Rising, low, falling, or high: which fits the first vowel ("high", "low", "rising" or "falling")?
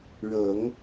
low